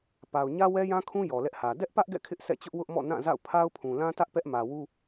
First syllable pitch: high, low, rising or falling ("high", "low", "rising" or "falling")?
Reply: low